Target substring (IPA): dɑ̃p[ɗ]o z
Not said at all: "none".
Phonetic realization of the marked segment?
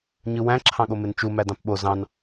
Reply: ɓ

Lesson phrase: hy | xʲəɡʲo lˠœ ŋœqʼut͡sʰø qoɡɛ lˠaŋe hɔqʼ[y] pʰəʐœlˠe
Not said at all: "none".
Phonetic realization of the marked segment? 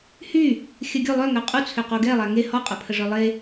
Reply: ø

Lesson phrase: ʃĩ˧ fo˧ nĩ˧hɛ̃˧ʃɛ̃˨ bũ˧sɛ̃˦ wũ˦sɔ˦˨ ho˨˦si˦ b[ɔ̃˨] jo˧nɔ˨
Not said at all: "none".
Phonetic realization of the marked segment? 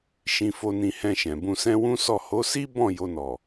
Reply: ɔ̃˦˨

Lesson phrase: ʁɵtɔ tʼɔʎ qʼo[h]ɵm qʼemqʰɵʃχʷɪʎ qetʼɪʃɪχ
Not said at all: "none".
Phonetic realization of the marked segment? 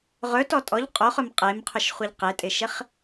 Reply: χ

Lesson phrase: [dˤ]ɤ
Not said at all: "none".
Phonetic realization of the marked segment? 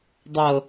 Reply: dˤ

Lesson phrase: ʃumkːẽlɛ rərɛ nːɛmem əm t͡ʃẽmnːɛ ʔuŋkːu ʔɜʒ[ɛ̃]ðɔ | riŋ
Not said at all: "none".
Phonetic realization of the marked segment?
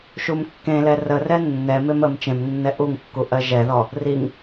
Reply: ɛ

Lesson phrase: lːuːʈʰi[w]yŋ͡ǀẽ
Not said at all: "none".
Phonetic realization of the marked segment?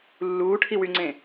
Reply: w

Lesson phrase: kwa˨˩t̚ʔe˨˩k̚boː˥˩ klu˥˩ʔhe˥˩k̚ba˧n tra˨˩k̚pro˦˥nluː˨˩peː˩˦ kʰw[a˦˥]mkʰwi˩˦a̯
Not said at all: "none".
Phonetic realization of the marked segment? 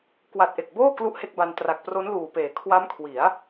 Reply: a˦˥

